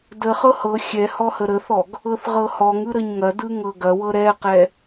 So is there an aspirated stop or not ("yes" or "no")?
no